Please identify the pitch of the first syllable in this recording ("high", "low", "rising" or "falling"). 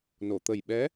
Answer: low